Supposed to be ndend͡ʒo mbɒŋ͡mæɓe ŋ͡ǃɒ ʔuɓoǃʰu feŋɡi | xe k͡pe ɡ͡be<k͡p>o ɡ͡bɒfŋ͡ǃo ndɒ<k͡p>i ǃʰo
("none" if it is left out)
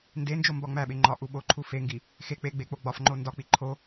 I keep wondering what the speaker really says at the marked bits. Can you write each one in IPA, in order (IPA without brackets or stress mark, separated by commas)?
k͡p, k͡p